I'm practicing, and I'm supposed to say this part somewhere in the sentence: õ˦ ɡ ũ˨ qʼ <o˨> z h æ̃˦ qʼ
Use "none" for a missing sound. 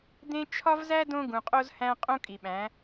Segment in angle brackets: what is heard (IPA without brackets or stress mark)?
o˦